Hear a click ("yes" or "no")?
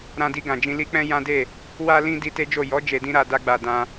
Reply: no